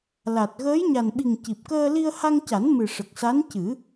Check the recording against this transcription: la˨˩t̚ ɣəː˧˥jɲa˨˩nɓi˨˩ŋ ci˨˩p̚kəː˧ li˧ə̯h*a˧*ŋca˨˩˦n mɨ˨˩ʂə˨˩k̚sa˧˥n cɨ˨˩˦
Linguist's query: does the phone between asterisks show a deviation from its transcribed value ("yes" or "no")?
no